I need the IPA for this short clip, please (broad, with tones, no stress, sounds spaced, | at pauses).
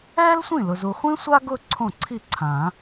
ɛː˥ l sʷ ĩ˥˩ l ʊ˨ z u˨ χʷ ĩ˥ sʷ a˥ ɡ ʊ˥˧ ǀʰ õ˥˩ ǀʰ i˥˩ ǀʰ ã˨˩˦